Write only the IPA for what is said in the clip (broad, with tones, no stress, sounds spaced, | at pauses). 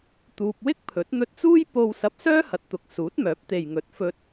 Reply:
t̪ uː˧ p̚ w ɪ˥ k̚ pʰ ɵ˨˥ t̚ n̪ ɵ˧ t̚ t͡s uː˥ j p o˥ w s ɐ˧ p̚ s œː˥ h ɐ˨˥ t̚ t̪ ʊ˨ k̚ s uː˨˥ t̚ m œː˨˥ p̚ t̪ e˨ j ŋ ɵ˨˥ t̚ f ɵ˧ t̚